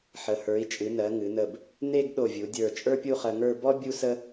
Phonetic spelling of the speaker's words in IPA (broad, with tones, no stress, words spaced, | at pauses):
ħə˩˧ hə˞˩˧i̯t͡ʃʼɨ˩˧nɜ˩˧ ŋɨ˩˧nə˧˩b | ne˥˧ɡ ɗo˧˩vʲu˩˧dʲə˞˧˩ t͡ʃʼə˞˥pʲu˥˧χɜ˧ŋə˞˥˧ bɔ˥ bʲu˥sə˥